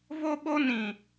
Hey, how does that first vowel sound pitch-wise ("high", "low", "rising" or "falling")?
high